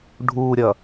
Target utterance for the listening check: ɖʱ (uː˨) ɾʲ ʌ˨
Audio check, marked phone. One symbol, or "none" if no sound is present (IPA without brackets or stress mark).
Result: uː˨